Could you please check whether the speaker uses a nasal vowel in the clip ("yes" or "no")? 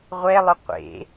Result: no